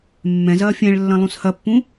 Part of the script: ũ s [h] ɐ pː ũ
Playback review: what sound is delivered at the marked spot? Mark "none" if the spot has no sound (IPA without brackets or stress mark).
h